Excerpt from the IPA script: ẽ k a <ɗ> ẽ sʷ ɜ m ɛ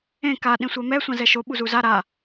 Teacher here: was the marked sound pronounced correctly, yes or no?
yes